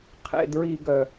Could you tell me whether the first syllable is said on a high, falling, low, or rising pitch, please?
low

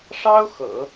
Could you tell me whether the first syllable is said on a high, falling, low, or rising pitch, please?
high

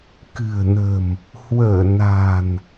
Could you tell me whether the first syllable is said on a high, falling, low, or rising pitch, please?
low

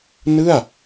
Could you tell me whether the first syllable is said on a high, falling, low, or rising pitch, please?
falling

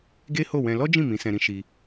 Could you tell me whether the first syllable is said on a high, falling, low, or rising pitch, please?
high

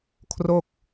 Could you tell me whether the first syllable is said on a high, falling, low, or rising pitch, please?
falling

